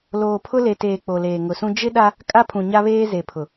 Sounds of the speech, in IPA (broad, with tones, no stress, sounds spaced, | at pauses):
l oː˨ pʰ ʊ˦ l e˨ t eː˨ k͡p o˨ l eː˨ ŋ ʊ˨ s ũ˦ d͡ʒ ɪ˦ ɗ a˦ | kʼ a˦ pʰ ũ˨ ɲ a˦ β eː˦ z e˨ pʰ ʊ˨